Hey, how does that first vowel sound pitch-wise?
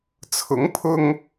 rising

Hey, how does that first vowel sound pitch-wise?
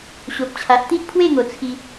low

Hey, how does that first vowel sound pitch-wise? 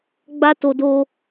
high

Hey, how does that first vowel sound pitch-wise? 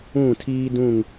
falling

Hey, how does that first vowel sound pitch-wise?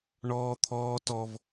high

